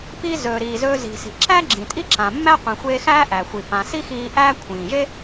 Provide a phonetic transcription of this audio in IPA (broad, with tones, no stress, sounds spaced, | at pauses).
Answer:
p i˧ z ɵː˩ ɾ iː˩ z ɵː˧ z i̤˩ s i̤˩ ǁ æ˥ ɡ͡ǁ ĩ˩ tʼ i˥ ǁ ã˩ mː æ˥ qʷ ĩ˩ xʷ eː˧ x æː˥ ʔ æ˩ xʷ i˩ p ã˩ s i˥ x iː˧ ʔ æː˥ kʷʰ ĩː˩ ʒ e˥